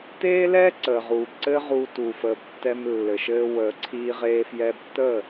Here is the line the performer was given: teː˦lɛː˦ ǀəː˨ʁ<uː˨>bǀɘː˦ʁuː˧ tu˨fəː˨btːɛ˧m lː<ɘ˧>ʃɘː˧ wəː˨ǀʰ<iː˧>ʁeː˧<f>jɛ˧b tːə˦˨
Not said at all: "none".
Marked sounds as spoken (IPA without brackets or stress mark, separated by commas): uː˨, ɘ˨, iː˧, f